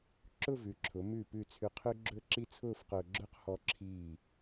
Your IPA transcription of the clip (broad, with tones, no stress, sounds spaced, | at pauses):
ǁ ʊ˥˧ v ʉ˩˧ ǁʰ ʊ˩˧ m ʉ˧˩ p ʉ˧˩ t͡sʰ ʉ˧ qʰ ʉ˥ ɡ͡ǁ ɵ˥ ǁ i˥ t͡sʰ ʊː˥˧ f q ʊː˧ ɡ͡ǁ ʊː˥ q h ɔ˧ ǁʰ iː˧˩